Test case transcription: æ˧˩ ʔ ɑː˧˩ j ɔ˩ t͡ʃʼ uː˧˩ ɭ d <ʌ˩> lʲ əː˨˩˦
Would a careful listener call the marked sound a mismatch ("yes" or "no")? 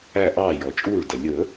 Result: no